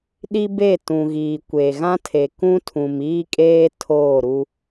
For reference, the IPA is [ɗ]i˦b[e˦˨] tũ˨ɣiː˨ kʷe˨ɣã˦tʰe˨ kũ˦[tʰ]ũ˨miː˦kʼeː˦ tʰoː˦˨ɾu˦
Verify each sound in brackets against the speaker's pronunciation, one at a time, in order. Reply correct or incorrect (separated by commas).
correct, correct, correct